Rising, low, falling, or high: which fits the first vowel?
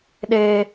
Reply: high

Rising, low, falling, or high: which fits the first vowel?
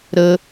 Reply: low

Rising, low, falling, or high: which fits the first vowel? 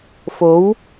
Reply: rising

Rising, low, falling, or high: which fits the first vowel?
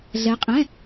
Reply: rising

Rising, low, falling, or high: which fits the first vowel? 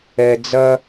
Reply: low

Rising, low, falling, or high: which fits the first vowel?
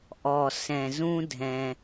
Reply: low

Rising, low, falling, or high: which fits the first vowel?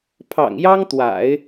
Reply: low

